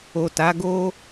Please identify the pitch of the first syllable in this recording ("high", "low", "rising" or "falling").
low